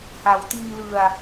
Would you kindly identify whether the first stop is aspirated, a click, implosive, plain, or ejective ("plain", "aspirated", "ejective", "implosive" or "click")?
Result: plain